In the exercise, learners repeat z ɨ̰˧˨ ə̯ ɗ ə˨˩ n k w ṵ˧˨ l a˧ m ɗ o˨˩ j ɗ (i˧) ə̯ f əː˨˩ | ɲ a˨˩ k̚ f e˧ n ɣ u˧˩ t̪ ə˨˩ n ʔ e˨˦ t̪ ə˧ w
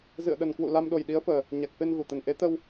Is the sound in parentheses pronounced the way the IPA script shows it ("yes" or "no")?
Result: no